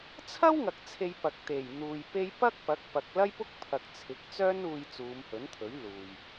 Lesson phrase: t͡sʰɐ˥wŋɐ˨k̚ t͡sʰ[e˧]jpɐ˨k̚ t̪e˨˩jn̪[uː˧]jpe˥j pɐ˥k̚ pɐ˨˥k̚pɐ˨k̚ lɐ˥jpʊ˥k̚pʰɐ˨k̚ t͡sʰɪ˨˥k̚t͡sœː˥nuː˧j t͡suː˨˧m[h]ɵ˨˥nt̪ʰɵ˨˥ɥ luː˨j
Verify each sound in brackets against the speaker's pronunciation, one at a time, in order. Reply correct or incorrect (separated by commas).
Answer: correct, incorrect, correct